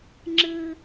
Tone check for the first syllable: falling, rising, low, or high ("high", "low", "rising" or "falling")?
high